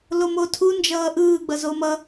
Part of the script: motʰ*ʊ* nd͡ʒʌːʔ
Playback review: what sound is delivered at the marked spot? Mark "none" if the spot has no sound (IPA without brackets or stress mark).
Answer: u